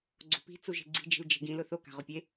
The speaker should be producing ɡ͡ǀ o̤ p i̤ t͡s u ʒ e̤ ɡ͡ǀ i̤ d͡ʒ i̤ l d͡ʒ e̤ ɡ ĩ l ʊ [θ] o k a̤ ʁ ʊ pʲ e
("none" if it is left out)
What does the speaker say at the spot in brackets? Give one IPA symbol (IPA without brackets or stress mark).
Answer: θ